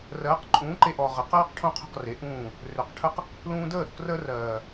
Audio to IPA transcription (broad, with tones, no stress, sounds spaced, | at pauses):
r ɜː˨˦ q ǃʼ ũː˨˦ ǃ e˧ ʔ ɔ˨ ʁ ə˨ q ɜː˦ q ʈʰ õ˦ qʰ o̤˦˨ q r e˨˦ ʔ ũː˦˨ | r ø˨ q ʈʰ ə˦ q | l ũː˧ d əː˦˨ ɾ o̤˨ k r əː˧ r ɜː˨